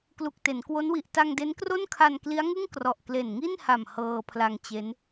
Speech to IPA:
k l u˨˩ k̚ t e˩˦ n k w o˦˥ n w i˨˩ ʔ t a˧ ŋ d e˦˥ n k r o˥˩ n kʰ a˧ n k l i˦˥ a̯ ŋ ɯ˥˩ ŋ k r ɔ˨˩ ʔ k l e˨˩ n ŋ i˥˩ n h a˨˩ m h ɤː˧ pʰ l a˧ ŋ t͡ɕ e˦˥ n

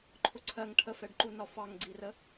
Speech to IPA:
ǃʰ ʊ ǀʰ ɜ ŋ ʈʰ ə f ɛ ɖ ǃ u n ɒ f ɑ ŋ ɡ͡ǀ i r ə

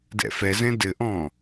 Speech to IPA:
d ɛ̰ f ɛ z ɛ̃ d ɘ ʔ ɔ̃

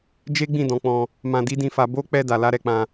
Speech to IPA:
d͡ʒ e˦ ɡ͡b ĩ˦˨ d ɔ̃˨˦ k͡p ɔ̃˧ | m ã˧ d i˦ d ĩ˦˨ f a˧ b o˦ k͡p ɛ˧ d a˨ l a˧ ɾ ɛ˧ k͡p ã˧

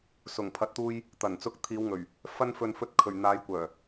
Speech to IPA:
s ʊ˨˩ ŋ pʰ ɐ˨ t̚ t̪ uː˧ j | t̪ ɐ˨˩ n t͡s ʊ˧ k̚ t̪ʰ iː˨˧ w ŋ ɵ˨˩ ɥ | f ɐ˧ n f ɵ˨ n f ɵ˨˥ t̚ kʰ ɵ˨˩ ɥ n̪ aː˨˧ j kʷ œː˨˩

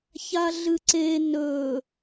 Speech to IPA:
ç a ɮ ɨ ǀ e n ɵ

